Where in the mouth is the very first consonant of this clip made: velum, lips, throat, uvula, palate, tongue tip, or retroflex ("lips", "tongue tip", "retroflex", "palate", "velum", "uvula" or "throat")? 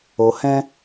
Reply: throat